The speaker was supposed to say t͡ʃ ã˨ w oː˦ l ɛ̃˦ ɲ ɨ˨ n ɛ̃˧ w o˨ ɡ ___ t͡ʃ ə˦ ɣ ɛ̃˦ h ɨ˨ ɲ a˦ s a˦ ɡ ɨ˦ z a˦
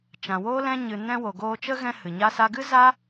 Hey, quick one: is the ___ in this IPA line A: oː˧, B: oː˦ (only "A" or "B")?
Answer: A